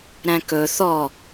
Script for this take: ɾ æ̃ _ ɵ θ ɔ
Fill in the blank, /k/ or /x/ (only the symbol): k